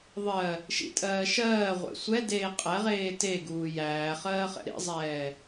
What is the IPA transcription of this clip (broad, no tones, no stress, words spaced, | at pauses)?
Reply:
ðˤɜ | ʃḭtʼɜː ʃɜːʁʷḛ sʷɛdeː qʼɛʁeː teɡuː jæːχɜːχɛ̰ ɾḭzˤɛː